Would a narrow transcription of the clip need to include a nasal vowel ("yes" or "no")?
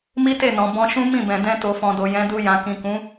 yes